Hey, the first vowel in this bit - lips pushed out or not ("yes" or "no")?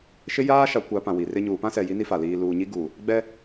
no